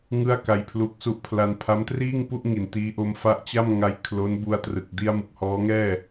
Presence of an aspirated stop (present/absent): present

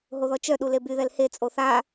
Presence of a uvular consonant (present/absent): absent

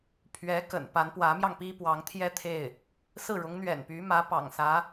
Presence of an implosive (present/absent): absent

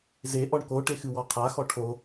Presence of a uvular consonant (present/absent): present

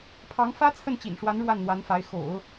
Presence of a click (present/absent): absent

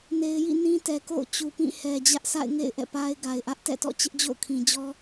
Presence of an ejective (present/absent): absent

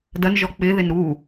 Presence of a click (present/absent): absent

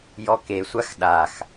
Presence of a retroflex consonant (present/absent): absent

